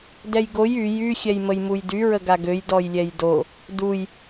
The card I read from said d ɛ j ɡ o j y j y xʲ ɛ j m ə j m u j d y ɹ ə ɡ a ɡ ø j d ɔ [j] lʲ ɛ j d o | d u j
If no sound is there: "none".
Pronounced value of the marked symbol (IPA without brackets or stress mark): j